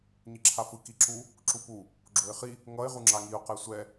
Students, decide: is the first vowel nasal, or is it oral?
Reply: oral